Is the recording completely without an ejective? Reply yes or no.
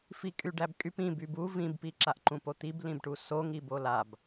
no